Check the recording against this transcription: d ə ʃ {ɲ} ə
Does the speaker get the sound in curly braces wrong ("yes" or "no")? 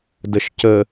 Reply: yes